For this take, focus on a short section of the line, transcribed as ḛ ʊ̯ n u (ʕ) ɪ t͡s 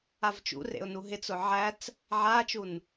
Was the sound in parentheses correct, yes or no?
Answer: no